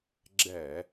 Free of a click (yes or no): no